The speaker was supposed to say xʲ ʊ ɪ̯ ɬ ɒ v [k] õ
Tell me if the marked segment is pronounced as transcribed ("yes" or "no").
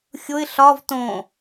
no